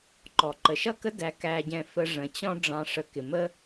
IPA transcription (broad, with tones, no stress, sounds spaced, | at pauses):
ǃ ɔ˨ ǃ ə˨ ʃ ʌ˦˨ k ə˦ d æ˧ k æ˧ ɟ ɛ̃˧ f ə˧ ʐ ə̃˨ t͡ɕ ɔ̃˦ ɖ͡ʐ ɑ̃˧ ʂ ə˧ k ɪ˨ m ə˦